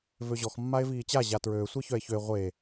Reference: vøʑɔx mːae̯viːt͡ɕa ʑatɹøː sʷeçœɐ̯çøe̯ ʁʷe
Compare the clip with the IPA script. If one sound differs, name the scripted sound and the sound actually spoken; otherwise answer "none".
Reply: ɐ̯ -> e̯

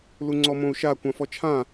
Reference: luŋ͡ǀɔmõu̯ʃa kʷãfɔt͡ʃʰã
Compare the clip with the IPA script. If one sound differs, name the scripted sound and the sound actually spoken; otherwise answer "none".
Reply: none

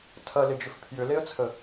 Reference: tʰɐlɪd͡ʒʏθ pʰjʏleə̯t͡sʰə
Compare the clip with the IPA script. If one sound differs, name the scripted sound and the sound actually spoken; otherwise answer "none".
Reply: θ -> f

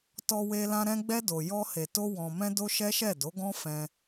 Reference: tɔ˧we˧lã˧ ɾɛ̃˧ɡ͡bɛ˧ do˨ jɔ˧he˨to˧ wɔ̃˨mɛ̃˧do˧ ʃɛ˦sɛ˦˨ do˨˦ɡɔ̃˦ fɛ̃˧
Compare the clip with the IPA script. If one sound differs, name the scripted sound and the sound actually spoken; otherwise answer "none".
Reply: s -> ʃ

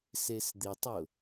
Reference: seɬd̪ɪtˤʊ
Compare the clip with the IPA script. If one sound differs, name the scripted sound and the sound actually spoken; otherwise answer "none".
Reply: ɬ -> s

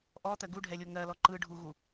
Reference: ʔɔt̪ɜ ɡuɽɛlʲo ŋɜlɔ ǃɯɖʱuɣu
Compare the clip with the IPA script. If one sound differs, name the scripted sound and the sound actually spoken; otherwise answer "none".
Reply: ɽ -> ɖʱ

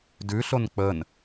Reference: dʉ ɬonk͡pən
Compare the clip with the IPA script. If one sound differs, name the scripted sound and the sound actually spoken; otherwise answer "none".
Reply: none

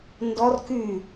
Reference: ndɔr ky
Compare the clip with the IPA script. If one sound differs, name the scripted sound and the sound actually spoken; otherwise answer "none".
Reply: none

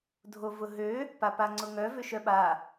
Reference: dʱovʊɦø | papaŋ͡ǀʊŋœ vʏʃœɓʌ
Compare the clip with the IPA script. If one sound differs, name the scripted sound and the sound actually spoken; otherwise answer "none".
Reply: ʌ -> a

